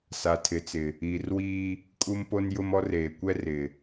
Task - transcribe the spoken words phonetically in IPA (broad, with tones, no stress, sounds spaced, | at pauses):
s a˨ tʰ ɪ˨ t͡s ɪ˨ | iː˨ r w iː˦ | kʼ u˦ m p o˦ n j ʊ˦ m ɔ˦ r eː˨ kʷ ɛ˦ r ɪ˨